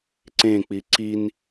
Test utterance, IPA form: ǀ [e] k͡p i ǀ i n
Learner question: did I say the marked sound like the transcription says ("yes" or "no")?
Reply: no